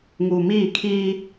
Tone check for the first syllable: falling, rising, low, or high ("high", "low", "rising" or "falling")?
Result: low